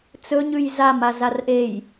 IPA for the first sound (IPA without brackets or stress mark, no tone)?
t͡s